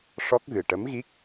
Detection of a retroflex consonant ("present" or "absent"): present